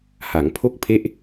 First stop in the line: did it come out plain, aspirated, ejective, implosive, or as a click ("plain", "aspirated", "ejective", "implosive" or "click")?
aspirated